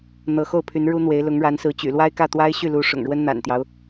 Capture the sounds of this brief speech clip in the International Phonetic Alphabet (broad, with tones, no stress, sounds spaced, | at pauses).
n̪ ɤ˧˥ x o˥˩ ʊ̯ pʰ y˧˥ n ɻ u˥ n̪ w e˧˥ ɪ̯ l ʊ˧˥ ŋ ɻ a˧˥ n s ɹ̩˧˥ t͡ɕ y̰˨˩ l w a˥ ɪ̯ k ä˥˩ t̪ w a˥ ɪ̯ ɕ y˥˩ l u˧˥ ʂ ʊ̰˨˩ ŋ ɻ w ə˥ n n̪ a̰˨˩ n t̪ j ɑ˦ ʊ̯